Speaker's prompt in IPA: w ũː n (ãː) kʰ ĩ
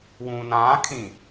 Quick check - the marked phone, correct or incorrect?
correct